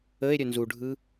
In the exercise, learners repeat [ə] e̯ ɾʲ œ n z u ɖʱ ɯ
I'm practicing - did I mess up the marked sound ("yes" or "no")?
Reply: no